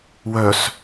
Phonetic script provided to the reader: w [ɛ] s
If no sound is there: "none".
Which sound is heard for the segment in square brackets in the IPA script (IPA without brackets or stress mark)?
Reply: œ